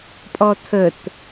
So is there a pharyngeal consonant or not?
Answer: no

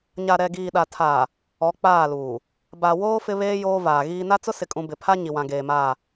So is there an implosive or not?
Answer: yes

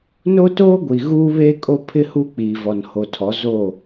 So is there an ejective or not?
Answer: yes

